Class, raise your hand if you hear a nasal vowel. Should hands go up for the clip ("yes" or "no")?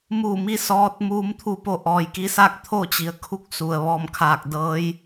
no